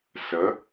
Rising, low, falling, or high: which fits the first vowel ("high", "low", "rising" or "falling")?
rising